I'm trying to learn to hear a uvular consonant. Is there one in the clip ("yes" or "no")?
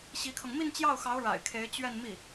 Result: no